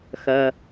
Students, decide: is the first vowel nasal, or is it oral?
oral